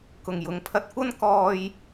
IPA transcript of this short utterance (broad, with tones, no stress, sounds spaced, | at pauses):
k ʊ˨˩ ŋ j ʊ˨ ŋ pʰ ɐ˧ t̚ kʷ ɐ˥ n k ɔː˧ j